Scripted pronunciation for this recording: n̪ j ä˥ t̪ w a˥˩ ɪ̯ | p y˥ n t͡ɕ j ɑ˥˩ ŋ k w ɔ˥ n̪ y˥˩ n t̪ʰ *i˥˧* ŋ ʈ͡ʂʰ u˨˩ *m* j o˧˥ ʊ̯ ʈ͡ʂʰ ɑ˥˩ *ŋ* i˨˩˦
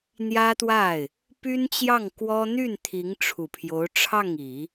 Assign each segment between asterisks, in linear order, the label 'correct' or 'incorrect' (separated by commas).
incorrect, incorrect, correct